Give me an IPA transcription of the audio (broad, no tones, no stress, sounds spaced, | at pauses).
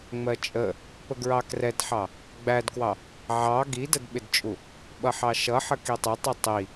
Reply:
ŋ͡m ɜ t͡ʃʼ ə | p ə ɡ ɹ ɑ k r ɛ d ħ ɑ | ɡ͡b æ d k w ɑ | ʕ ɑ ɡ i d ə d ɓ ɪ d t͡ʃʼ u | ɓ ʌ ħ ɑ ʃ ʌ ħ ə k i tˤ ɪ tˤ i tˤ i